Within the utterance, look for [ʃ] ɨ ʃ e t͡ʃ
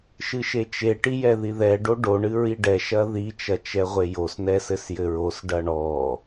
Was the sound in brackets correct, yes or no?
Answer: yes